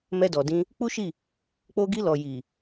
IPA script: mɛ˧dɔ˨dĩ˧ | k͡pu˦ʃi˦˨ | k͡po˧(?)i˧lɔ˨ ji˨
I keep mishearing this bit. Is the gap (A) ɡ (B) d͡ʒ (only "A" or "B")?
A